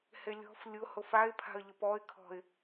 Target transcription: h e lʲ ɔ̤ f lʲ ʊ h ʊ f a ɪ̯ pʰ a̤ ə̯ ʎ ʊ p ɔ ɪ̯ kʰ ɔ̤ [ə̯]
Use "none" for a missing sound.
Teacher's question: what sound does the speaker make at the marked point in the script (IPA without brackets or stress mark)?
ɪ̯